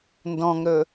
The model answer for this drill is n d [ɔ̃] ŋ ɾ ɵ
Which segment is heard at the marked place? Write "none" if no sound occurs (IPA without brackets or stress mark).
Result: ɔ̃